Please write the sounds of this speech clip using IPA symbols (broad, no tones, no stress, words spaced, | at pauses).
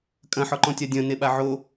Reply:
kʼɐ̃ħɔǃɔ̃tʲa dʲɐ̃ neɓaʕo